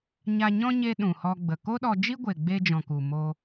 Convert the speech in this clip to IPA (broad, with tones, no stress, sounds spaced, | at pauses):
ɲ a˧ ɲ ɔ̃˦ ɲ e˦ ɗ ũ˨ h ɔ˧ ɡ͡b ə˨ k o˦ ɗ ɔ˧ d͡ʒ i˦ ɡʷ e˨ ɡ͡b e˧ d͡ʒ ɔ̃˨ k u˨ m oː˧